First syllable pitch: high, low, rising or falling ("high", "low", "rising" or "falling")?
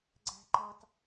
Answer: low